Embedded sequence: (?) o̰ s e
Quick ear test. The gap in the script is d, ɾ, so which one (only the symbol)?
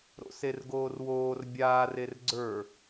ɾ